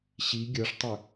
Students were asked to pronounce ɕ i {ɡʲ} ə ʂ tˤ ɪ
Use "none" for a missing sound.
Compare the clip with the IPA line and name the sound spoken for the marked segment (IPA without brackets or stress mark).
ɡʲ